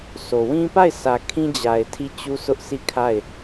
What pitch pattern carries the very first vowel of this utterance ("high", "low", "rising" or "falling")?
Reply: low